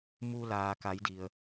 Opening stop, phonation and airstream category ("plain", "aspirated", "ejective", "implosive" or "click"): plain